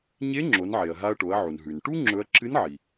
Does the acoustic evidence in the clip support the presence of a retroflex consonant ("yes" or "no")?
yes